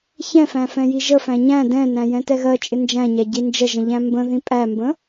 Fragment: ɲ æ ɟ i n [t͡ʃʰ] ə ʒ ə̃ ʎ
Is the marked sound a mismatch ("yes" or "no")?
yes